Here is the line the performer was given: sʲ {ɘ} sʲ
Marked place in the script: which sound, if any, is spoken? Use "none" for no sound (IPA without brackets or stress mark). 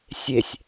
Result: e